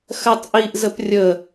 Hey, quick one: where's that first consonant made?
velum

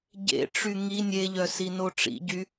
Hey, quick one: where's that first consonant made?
palate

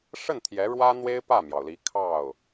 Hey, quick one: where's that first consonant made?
retroflex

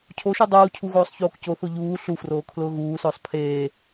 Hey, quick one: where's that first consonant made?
palate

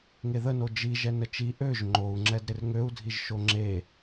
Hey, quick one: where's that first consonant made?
velum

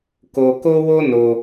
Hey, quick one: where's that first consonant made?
velum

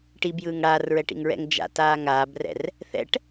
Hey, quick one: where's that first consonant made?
retroflex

